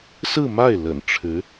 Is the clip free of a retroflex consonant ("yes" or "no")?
no